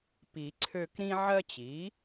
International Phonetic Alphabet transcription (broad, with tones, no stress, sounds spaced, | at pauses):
p i˨˩˦ ǀʰ ø˦˨ k ɾ ĩ˦ ʕ ɜ˦ t͡ɕ i˩˥